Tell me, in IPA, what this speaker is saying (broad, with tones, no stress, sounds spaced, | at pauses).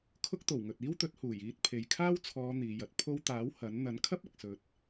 kʰ ʊ˥ k̚ t̪ o˨˩ w ŋ ɵ˨ t̚ iː˥ w t̪ ɵ˨˥ t̚ h uː˨˩ j iː˧ t̚ pʰ e˨ j kʰ aː˥ w t͡sʰ ɔː˨˧ n̪ iː˨˧ j ɐ˨˥ t̚ pʰ o˧ w t̪ aː˨˥ w h ɐ˨˥ n n̪ ɐ˨˥ n kʰ ɐ˥ p̚ ɐ˨ k̚ s ɵ˨˥ t̚